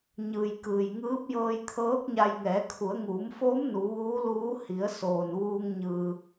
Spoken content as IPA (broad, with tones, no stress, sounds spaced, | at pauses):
ɲ ɯː˩ j k ɯː˩ j ŋ ɯː˧˥ p̚ j ɤː˧ j t̪ʰ ɤː˧˥ k̚ ɲ a˧ j ŋ ɛː˩˧ kʰ u˩˧ ə̯ ŋ uː˩˧ m f oː˧˥ m n u˩˧ ʋ uː˧˥ l uː˧˥ h i˩˧ ə̯ s oː˩ n ʋ uː˧ ŋ ɲ ɯː˧